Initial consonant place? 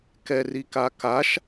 velar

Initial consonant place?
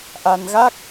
glottal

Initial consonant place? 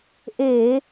glottal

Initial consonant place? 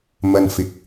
labial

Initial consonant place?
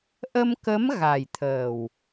glottal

